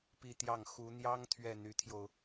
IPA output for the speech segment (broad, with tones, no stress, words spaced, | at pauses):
pi˥˧ t̪jɑ˥˩ŋ xu˧˥n̪jɑ˥ŋ t̪ʰɥɛ˥˩n̪y˧˥t̪ʰjo˧ʊ̯